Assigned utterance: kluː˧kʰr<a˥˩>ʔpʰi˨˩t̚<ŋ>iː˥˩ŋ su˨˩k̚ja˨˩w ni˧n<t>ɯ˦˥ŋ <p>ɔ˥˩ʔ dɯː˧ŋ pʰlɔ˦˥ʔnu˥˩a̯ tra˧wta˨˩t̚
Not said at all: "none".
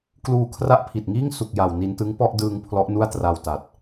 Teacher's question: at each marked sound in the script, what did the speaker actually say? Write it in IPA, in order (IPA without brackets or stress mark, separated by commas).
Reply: a˦˥, ŋ, t, p